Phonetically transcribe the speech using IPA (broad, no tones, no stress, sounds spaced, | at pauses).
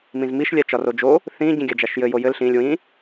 m ĩ z m i ʃ lʲ a t͡ʃ ɒ r o d͡ʒ o | θ ĩ ɟ ĩ ɡʲ a d͡ʒ a ʃ j ɘ j o j ɘ l ɬ ĩ lʲ w ĩ